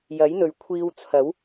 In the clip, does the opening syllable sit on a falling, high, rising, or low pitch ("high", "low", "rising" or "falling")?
rising